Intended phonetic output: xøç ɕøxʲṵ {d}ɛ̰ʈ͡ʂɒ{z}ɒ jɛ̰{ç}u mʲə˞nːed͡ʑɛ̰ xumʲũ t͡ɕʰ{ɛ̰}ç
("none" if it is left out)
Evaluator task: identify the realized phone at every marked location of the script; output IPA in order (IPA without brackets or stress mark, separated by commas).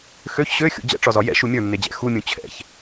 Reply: d͡ʑ, z, ʃ, ɛ̰